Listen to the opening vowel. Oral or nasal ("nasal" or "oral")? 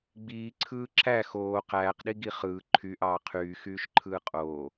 oral